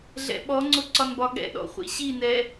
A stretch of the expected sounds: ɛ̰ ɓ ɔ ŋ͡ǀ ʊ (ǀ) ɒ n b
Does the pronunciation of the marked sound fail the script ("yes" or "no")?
no